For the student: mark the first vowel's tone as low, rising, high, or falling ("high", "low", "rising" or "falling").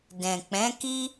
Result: low